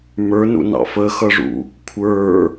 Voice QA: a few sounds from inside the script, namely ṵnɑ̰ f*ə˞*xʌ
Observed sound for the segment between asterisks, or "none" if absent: ə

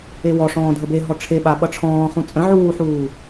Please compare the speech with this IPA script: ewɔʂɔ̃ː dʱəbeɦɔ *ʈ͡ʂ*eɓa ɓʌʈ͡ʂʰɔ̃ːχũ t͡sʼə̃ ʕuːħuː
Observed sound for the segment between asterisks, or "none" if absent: ʈ͡ʂʰ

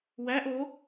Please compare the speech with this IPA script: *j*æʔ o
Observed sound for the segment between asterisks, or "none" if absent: w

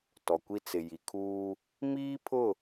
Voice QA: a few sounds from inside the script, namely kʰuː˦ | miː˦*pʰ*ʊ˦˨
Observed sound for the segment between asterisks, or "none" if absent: pʰ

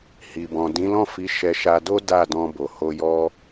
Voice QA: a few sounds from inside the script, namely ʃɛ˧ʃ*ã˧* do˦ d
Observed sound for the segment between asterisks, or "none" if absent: a˧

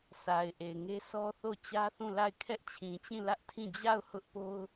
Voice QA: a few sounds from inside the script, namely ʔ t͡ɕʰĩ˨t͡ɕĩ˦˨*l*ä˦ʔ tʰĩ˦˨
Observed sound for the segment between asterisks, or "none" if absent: l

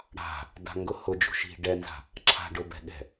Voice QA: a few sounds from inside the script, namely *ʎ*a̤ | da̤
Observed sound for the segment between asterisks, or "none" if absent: ɽ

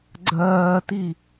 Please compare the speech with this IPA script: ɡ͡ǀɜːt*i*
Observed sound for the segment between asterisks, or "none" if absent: i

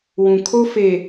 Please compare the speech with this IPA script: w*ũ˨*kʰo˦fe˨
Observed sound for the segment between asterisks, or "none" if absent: ũ˨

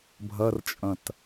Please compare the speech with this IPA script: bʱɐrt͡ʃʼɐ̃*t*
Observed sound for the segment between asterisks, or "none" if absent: t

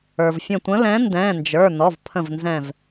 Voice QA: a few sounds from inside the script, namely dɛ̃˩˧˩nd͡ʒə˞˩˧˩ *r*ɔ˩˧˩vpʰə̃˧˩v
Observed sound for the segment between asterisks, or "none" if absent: n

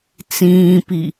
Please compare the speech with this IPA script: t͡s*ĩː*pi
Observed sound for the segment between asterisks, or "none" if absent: ĩː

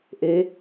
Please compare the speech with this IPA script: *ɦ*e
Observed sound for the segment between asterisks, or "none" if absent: ʔ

